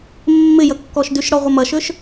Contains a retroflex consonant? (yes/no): yes